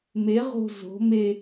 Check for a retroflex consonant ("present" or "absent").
absent